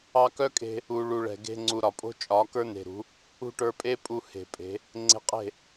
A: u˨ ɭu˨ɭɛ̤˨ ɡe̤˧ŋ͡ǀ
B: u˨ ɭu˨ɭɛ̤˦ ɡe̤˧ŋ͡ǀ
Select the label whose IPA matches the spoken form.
A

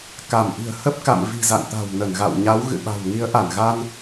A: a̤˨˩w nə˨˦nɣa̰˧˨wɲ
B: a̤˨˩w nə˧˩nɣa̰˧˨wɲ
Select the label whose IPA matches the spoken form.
B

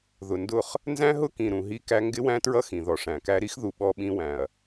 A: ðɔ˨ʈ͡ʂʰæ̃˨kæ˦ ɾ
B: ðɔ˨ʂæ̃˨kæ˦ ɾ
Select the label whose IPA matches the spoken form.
B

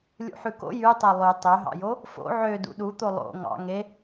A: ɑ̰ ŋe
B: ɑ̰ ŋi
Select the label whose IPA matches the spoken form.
A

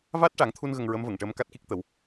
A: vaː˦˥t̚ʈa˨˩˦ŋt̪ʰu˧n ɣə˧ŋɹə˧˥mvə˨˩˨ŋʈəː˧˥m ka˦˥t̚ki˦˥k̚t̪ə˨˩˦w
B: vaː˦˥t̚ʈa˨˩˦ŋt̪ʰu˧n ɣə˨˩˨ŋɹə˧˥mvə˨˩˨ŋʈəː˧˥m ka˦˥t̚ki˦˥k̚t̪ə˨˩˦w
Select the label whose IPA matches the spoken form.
A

